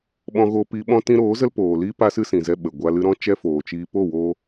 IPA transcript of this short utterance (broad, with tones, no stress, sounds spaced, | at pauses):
ɓ ɔ̃˧ ɣ o˧ p i˧ ɓ ɔ̃˦ t ĩ˧ ɾ oː˨˦ z ə˦ l p oː˨ l iː˦ p a˦ s ɨ˦ s ĩ˨ z ɛ˧ ɓ ə˨ ɡʷ a˧ l ɨ˧ ɾ ɔ̃˦ t͡ʃ ɛ˦ f oː˨ t͡ʃ iː˧ p o˦˨ w oː˧